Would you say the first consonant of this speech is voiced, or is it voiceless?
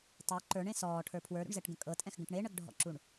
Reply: voiceless